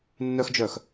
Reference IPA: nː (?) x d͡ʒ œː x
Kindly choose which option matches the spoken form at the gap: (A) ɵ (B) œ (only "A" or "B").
B